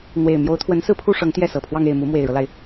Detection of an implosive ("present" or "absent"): absent